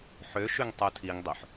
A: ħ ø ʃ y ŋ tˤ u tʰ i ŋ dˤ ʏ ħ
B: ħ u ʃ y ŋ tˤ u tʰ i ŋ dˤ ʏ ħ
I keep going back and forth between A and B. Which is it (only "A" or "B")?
A